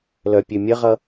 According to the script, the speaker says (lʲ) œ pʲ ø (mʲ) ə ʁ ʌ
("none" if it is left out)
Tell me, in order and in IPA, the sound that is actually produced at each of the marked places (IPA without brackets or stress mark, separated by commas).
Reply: l, mʲ